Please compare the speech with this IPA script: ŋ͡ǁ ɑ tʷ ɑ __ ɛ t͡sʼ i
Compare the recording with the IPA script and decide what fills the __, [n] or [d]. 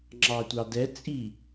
d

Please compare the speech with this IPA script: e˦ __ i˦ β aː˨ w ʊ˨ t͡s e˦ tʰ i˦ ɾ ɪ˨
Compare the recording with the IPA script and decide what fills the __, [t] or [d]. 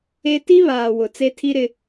t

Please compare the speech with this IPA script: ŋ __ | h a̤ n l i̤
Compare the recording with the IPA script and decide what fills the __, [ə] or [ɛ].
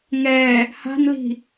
ɛ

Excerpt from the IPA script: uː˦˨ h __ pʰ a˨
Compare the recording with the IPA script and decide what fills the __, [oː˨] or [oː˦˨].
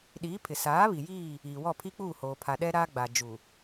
oː˨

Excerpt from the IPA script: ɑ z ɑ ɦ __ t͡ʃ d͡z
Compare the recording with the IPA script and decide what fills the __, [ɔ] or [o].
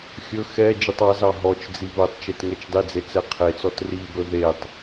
ɔ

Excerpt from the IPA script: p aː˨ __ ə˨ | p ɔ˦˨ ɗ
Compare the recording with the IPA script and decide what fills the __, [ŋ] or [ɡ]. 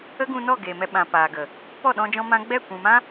ɡ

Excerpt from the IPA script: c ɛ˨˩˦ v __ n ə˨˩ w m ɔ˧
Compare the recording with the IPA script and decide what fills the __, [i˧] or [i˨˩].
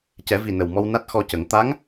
i˨˩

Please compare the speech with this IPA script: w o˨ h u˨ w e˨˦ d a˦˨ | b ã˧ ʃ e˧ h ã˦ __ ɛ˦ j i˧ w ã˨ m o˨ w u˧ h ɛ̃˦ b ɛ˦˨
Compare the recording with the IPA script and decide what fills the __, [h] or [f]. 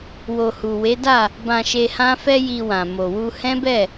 f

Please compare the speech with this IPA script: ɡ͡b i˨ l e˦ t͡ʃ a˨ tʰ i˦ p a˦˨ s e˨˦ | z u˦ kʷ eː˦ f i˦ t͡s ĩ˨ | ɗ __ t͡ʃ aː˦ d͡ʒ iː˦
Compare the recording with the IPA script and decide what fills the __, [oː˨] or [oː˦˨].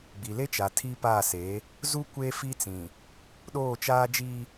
oː˦˨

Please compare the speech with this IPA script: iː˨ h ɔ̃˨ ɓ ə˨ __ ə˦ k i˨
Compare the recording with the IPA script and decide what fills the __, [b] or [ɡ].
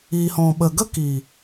ɡ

